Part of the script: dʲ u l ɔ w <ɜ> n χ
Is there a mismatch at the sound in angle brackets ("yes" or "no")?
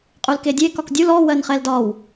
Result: no